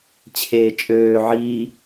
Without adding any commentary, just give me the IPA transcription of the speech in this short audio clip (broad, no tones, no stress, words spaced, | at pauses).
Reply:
t͡ɕʰeːt͡ʃʼøː ʕiː